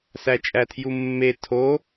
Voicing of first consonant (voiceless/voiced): voiceless